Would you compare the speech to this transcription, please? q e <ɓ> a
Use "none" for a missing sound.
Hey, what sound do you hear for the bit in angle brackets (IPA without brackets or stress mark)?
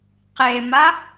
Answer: m